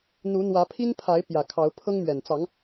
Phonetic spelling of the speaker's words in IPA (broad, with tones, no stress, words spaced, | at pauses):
n̪u˨˦n̪wä˨˦pʰi˦n pʰa˨˦ɪ̯ pjä˨˩kʰɑ˨˦ʊ̯ pʰɤ˦ŋmɥɛ˨˩n t͡sɑ˨˦ŋ